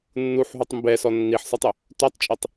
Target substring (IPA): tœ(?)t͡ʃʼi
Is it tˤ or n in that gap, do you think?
tˤ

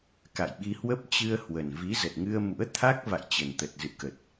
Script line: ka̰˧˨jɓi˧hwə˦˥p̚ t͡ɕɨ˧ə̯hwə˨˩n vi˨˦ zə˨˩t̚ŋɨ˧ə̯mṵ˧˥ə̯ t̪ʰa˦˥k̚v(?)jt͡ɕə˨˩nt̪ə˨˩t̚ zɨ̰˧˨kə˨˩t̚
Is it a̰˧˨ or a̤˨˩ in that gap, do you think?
a̰˧˨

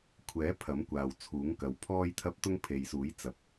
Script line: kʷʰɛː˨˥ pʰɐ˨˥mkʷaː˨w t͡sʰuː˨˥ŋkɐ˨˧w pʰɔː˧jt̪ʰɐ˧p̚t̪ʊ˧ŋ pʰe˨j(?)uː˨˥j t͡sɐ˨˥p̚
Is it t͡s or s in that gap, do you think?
s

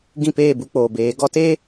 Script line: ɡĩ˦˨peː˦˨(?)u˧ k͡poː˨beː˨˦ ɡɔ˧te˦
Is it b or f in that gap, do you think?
b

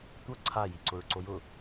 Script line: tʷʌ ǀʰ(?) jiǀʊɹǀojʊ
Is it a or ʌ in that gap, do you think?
a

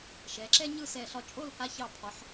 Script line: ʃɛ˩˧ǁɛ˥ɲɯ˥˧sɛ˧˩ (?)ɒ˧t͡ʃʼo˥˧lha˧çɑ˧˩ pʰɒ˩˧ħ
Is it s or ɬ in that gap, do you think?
ɬ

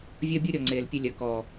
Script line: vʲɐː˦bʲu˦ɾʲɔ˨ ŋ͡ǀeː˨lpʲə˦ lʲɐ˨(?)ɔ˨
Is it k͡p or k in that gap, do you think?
k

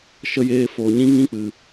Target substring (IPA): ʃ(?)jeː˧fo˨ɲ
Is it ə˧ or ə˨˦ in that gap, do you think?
ə˧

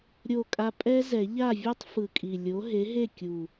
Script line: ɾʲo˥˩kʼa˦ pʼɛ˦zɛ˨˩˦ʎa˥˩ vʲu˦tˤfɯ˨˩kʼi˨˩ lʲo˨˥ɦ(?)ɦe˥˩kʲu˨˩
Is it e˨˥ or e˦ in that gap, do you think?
e˨˥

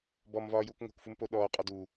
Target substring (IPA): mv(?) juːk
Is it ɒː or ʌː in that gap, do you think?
ɒː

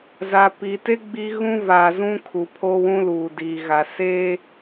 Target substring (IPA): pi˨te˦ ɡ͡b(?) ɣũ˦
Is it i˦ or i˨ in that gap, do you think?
i˦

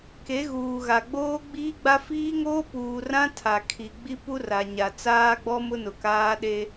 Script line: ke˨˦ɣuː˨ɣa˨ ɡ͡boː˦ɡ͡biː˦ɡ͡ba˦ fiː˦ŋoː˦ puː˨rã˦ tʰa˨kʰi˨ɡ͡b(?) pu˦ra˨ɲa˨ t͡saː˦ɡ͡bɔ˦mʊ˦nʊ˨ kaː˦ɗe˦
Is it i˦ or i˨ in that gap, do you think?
i˦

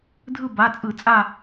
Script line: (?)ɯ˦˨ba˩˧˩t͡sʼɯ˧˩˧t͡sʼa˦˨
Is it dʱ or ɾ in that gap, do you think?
dʱ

